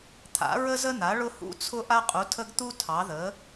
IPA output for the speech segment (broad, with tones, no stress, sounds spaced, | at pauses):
t̪ʰ a̰˩˥ ɹ ə˦ z ə˦ n̪ a˩˥ ɭ ʊ˦ h ṵ˦ t͡sʰ ʊ˦ ʔ a˦ qʼ u˩˥ tʰ ə˦ ɡ t̪ u˦ tʰ ɑ˩˥ ð ə˩˥